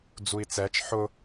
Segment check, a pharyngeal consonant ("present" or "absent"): present